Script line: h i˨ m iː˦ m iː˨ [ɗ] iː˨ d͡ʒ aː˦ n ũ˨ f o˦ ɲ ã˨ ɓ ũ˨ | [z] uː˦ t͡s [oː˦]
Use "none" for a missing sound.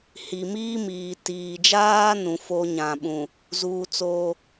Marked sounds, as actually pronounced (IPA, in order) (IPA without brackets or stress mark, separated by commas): t, z, oː˦